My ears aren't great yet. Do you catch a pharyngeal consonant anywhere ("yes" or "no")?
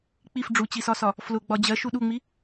no